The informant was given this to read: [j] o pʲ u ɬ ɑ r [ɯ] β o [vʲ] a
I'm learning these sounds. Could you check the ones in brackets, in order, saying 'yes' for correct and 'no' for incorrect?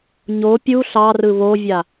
no, yes, yes

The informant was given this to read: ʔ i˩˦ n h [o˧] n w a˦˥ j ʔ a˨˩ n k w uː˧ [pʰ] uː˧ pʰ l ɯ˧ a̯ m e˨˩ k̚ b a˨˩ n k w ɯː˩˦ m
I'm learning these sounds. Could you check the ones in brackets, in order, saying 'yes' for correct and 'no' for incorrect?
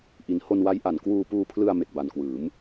yes, no

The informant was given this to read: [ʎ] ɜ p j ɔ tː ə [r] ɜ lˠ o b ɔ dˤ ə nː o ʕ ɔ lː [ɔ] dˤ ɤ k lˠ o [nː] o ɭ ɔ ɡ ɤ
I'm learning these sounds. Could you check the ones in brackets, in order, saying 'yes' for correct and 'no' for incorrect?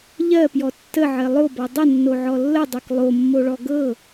yes, no, no, no

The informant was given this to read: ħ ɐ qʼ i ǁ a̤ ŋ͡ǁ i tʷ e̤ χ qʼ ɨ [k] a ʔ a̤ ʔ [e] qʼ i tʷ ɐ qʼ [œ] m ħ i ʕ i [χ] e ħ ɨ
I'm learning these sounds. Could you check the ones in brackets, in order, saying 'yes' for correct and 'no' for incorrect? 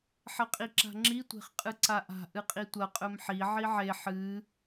no, no, no, no

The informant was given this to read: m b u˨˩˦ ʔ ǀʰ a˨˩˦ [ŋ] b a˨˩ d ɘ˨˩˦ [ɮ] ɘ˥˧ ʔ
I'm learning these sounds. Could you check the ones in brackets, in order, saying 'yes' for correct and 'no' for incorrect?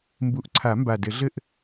no, yes

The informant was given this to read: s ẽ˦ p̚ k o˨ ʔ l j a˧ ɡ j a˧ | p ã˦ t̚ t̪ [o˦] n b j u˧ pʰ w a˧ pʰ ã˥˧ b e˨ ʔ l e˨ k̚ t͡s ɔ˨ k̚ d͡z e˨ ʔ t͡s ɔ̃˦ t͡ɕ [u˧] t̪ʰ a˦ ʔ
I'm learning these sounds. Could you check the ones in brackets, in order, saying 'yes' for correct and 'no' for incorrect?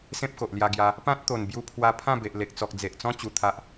no, yes

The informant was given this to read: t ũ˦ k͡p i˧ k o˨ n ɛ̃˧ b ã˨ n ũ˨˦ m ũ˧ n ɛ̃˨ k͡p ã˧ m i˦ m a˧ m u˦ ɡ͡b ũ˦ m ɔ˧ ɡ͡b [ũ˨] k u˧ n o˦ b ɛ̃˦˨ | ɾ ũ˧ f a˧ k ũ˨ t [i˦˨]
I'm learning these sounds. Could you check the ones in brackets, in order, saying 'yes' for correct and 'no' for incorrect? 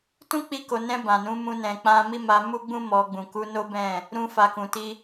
yes, no

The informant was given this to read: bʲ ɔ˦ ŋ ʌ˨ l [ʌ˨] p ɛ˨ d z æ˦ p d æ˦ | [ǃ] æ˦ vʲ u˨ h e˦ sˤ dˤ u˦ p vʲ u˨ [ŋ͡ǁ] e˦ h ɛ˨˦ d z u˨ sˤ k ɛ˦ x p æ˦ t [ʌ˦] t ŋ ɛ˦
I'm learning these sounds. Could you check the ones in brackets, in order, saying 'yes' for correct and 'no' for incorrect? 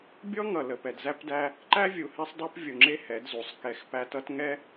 no, yes, yes, yes

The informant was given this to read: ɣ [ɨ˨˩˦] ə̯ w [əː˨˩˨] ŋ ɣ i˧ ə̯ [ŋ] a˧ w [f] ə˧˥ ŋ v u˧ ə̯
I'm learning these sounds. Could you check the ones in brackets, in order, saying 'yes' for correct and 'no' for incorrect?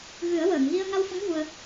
yes, yes, yes, yes

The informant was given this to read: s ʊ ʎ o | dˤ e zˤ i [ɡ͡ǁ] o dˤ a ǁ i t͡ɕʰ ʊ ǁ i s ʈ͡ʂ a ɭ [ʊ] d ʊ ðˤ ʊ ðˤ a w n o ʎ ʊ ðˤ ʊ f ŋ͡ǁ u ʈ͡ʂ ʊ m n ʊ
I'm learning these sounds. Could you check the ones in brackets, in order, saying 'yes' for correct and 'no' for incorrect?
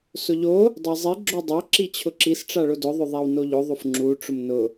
yes, yes

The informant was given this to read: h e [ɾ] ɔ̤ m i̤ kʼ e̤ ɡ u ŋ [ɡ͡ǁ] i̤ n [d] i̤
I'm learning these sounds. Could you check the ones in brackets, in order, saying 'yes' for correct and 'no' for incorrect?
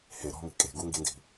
yes, no, yes

